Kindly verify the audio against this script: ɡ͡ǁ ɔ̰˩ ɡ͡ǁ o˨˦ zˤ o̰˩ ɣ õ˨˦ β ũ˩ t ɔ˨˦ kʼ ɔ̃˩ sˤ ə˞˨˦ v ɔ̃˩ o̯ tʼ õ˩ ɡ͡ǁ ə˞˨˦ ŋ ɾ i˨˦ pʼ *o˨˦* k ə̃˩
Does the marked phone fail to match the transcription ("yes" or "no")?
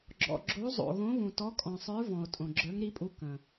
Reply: yes